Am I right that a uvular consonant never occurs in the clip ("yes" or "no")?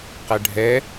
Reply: no